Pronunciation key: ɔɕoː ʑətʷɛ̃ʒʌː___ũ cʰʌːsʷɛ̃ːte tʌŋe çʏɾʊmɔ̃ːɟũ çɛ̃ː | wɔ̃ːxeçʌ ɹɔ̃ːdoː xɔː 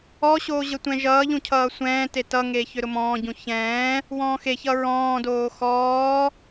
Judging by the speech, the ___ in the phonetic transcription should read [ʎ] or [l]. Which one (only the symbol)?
ʎ